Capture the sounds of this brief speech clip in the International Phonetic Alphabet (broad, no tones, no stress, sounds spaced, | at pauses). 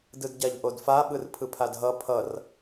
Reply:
d ɯ d ɟ a ʎ ʔ o d f a ɓ ɯ r pʰ ɯ pʰ a d ɦ ʌ pʰ ʌ r